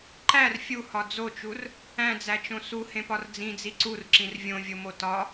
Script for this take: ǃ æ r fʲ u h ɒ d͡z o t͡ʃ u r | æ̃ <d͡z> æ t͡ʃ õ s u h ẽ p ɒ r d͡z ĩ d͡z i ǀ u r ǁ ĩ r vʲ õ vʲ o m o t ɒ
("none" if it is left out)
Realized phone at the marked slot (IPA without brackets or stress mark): d͡z